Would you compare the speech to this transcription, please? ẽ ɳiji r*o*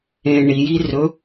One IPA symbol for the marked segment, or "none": ɵ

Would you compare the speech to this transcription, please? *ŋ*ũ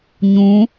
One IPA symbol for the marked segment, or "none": ɲ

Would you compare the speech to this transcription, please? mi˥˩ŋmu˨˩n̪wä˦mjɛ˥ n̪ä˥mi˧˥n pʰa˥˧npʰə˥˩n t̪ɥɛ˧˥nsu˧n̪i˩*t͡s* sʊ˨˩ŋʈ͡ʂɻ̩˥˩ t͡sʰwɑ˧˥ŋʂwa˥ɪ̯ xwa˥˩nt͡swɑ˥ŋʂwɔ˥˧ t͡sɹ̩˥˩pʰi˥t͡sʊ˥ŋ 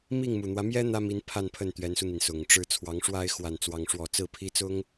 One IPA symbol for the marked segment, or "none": n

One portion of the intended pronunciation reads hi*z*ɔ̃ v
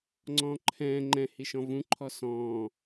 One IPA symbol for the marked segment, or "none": ʃ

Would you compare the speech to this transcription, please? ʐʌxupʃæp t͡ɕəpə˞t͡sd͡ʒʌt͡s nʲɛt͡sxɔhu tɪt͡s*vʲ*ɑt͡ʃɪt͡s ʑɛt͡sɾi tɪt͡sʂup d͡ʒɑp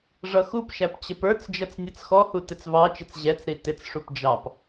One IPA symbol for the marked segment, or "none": v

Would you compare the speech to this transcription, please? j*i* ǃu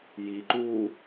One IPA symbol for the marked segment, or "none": i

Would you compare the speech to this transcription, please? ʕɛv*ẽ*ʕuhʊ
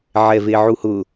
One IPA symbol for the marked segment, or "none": e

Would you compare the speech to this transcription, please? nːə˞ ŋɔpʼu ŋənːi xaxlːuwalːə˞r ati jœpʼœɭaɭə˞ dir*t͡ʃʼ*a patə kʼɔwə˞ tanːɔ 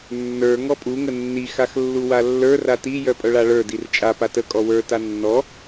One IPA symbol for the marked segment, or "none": t͡ʃʼ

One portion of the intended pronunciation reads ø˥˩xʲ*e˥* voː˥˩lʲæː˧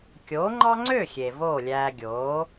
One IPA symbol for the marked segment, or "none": e˩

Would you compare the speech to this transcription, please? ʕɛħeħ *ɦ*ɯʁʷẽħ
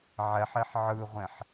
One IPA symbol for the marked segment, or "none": ʕ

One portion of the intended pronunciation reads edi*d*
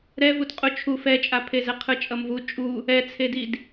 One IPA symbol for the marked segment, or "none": d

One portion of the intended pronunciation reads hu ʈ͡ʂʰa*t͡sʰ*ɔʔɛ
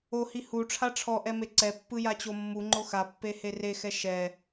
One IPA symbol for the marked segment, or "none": ʈ͡ʂʰ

